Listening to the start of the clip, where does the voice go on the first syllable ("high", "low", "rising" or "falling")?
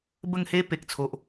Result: falling